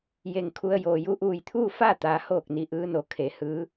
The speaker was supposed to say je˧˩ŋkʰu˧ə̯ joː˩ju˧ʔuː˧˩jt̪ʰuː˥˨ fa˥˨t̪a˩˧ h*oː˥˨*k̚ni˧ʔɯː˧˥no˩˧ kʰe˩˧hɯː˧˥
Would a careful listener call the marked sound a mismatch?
no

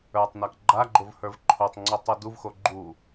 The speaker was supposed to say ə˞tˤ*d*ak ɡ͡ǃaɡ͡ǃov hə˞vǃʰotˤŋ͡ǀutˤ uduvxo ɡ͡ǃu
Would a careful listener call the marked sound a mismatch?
yes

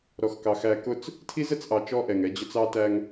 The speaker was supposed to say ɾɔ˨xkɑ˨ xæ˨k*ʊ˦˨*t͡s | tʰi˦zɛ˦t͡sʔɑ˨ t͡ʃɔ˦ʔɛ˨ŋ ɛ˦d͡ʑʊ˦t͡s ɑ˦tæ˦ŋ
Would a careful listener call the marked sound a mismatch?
no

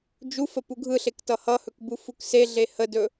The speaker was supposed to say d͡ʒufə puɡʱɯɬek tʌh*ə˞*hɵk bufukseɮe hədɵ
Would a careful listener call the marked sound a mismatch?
yes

